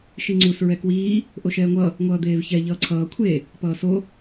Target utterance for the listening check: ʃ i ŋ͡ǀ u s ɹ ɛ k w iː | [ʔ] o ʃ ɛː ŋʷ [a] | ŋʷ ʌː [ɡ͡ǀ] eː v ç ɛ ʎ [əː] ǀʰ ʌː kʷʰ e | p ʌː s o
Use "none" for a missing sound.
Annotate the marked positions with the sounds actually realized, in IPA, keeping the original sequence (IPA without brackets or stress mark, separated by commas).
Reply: ʔ, ʌ, d̪, ʌː